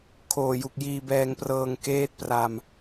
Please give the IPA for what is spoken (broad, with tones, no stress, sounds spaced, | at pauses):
kʰ oː˨˩ j u˨˩ k̚ j iː˧ b ɛː˧ ŋ p r ɤː˧ ŋ k eː˦˥ t̚ p r a˧ m